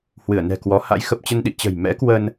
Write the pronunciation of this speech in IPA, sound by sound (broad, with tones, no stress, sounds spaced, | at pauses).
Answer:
h w ɨ˧˩ ə̯ n ɛ̤˨˩ k w ɔ˨˦ h a̰˧˥ j x ə˨˩ p̚ t͡ɕ ə˧ n ɗ ḭ˧˨ t͡ɕ ə̤˨˩ j m ɛ̰˧˥ k w ə˧ n